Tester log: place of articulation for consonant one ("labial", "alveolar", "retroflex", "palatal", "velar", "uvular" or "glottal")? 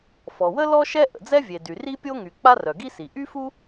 labial